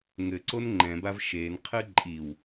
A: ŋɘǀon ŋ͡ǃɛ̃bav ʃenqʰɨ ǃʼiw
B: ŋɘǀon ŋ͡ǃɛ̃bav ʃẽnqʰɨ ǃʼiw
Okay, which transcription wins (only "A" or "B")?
A